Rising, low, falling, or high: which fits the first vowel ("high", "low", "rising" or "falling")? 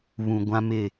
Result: low